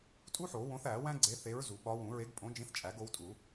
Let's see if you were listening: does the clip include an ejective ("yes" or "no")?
yes